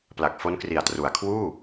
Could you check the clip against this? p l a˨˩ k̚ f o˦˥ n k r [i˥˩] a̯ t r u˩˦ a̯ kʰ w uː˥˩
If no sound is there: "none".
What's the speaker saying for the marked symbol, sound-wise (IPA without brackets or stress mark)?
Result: i˨˩